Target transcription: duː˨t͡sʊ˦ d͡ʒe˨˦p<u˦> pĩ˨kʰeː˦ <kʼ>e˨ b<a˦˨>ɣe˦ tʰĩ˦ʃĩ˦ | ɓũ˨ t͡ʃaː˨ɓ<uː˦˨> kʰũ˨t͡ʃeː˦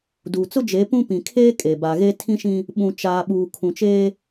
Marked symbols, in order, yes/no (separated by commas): no, yes, no, no